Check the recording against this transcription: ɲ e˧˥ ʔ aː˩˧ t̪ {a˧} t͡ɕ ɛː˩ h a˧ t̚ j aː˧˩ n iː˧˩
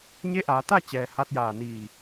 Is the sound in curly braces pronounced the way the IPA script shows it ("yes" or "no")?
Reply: no